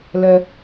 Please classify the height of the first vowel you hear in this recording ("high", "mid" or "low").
mid